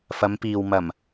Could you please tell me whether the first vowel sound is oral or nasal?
oral